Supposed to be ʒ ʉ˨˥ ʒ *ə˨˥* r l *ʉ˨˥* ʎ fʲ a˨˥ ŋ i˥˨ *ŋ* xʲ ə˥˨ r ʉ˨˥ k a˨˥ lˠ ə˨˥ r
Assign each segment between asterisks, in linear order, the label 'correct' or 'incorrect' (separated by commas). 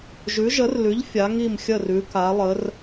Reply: correct, correct, incorrect